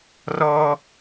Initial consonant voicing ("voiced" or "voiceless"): voiced